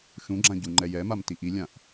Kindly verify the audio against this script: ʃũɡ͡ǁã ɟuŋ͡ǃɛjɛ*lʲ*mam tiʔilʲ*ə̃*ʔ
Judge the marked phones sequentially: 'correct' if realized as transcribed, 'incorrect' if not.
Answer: incorrect, incorrect

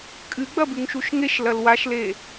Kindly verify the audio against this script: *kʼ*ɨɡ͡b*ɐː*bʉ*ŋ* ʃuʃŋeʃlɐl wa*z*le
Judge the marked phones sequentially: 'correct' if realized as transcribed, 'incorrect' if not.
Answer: correct, incorrect, correct, incorrect

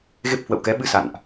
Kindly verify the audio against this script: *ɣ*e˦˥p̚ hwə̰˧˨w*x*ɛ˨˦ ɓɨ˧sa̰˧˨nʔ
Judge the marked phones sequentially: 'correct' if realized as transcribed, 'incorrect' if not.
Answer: correct, incorrect

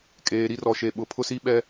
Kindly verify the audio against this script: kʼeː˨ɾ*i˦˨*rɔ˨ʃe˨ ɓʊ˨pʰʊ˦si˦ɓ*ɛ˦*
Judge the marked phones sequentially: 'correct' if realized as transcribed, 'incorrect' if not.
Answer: incorrect, correct

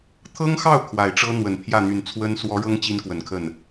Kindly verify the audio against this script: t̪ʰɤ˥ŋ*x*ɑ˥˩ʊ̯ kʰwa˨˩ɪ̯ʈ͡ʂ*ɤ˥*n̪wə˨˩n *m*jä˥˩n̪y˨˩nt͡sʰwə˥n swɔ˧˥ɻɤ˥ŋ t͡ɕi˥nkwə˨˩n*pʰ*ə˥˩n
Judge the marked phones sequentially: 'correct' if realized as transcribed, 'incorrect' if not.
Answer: correct, correct, incorrect, incorrect

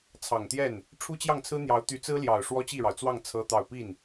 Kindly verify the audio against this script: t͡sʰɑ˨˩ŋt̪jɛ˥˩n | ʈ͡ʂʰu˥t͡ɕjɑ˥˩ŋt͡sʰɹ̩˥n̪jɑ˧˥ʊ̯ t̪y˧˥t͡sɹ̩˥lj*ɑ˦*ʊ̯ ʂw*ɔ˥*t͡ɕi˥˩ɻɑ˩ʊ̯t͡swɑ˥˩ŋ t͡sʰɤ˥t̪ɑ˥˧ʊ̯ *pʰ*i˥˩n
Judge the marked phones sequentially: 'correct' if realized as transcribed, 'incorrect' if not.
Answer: incorrect, correct, incorrect

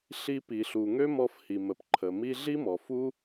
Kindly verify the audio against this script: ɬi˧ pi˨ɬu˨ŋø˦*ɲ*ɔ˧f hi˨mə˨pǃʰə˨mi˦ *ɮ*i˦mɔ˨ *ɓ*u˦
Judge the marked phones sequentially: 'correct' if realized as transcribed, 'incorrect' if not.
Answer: incorrect, correct, incorrect

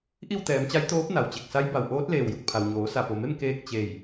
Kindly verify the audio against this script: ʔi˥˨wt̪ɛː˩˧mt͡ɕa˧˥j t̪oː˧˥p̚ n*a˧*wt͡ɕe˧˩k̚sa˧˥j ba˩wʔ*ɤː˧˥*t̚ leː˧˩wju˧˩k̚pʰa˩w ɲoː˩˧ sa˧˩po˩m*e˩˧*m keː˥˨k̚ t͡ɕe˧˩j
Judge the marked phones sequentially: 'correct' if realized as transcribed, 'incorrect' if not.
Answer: incorrect, incorrect, incorrect

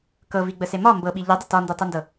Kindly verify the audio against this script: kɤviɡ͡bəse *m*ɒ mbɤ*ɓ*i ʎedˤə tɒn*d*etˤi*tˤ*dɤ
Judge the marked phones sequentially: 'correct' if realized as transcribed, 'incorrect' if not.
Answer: correct, correct, correct, incorrect

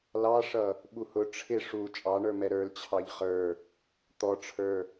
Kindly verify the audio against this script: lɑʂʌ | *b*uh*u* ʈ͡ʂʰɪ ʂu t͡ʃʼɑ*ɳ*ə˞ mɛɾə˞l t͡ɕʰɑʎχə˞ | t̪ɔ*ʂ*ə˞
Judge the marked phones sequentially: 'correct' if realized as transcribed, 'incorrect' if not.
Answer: incorrect, incorrect, correct, incorrect

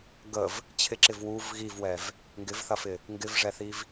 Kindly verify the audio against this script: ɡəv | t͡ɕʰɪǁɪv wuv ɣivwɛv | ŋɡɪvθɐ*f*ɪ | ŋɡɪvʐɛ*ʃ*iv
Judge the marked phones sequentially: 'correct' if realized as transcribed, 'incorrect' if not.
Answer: correct, incorrect

